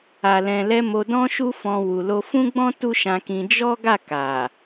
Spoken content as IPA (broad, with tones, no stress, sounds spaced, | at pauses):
a˨ l ɛ̃˨ l ɛ˧ m o˧ d ɔ̃˦ ʃ u˦ f ɔ̃˧ w u˨ l o˧ f ũ˦ ɡ͡b ɔ̃˦ t u˦ ʃ ã˧ k ĩ˧ d͡ʒ ɔ˦ ɡ a˦˨ k a˨